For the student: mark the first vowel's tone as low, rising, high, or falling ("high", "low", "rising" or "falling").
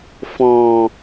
low